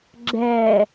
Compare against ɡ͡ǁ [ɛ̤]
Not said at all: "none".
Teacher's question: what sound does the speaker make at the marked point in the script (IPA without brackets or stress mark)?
ɛ